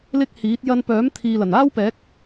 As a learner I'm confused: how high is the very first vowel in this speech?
high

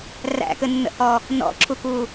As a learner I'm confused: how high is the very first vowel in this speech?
low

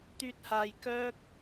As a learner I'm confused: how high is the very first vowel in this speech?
high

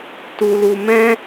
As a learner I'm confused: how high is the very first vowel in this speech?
high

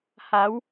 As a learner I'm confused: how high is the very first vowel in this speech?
low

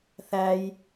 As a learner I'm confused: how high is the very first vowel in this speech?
low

